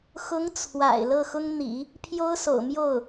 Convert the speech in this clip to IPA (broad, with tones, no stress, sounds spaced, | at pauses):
x ʊ˧˥ ŋ t͡sʰ w a̰˨˩ ɪ̯ l ɤ˥˩ x ʊ˥ ŋ n̪ ḭ˨˩˦ | pʰ j o˥ ʊ̯ s o̰˨˩ ʊ̯ m j o˥˩ ʊ̯